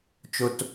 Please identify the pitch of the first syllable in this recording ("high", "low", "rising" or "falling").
high